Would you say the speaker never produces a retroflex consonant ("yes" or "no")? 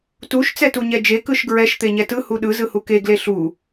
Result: yes